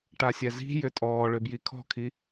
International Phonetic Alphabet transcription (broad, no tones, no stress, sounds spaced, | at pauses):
ʈ a sʲ ɛ z i̤ j ʏ tʼ ɔː ɭ ʏ b j i kʰ ɔ̤ kʰ i